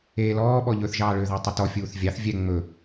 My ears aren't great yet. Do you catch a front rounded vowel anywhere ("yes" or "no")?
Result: yes